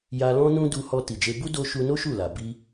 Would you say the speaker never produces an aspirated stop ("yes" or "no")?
yes